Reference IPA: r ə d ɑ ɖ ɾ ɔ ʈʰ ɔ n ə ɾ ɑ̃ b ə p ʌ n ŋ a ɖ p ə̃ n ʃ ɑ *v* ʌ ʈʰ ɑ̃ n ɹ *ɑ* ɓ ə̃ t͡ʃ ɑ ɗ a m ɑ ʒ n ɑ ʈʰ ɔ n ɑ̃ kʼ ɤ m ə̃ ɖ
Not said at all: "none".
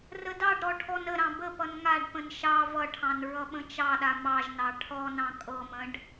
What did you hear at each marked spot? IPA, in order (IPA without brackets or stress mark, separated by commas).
v, ʌ